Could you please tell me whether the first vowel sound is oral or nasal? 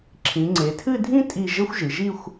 nasal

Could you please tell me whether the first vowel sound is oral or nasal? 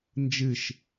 oral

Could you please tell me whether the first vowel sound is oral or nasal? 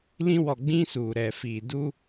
nasal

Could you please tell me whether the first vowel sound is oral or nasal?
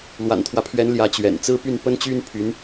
oral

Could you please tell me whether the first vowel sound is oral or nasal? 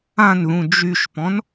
nasal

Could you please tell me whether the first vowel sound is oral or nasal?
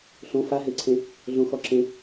nasal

